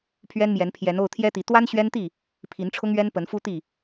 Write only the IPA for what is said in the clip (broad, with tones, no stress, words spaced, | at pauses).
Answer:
pʰɥɛ˦nmjɛ˨˦n pʰjɛ˨˦no˥˨ʊ̯t̪ʰjɛ˦t̪i˨˦ t̪wa˦nɕɥɛ˦nt̪i˥˨ | pʰi˨˦nʈ͡ʂʰʊ˦ŋɥɛ˦n pə˨˦nfu˦t̪i˥˨